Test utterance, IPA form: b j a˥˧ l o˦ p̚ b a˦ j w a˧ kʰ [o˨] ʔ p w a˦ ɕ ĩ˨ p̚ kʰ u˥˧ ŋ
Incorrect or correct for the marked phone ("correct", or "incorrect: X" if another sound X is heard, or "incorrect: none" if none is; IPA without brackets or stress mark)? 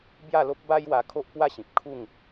incorrect: o˦